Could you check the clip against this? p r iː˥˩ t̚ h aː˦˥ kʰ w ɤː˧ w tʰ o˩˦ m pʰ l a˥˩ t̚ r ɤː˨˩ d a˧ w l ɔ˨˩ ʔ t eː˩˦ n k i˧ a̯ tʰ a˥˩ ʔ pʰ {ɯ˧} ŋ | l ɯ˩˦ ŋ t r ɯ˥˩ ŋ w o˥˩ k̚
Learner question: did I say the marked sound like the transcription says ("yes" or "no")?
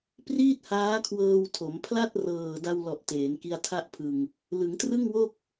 yes